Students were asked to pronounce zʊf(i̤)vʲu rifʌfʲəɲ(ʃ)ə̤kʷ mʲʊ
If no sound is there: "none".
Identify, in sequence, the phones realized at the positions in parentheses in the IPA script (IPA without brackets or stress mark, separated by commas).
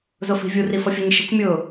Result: i̤, ʃ